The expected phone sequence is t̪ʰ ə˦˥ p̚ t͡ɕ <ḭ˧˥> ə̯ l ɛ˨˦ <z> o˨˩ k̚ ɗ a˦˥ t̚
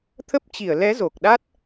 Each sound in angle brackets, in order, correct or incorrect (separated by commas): incorrect, correct